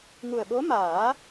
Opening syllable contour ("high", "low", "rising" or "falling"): low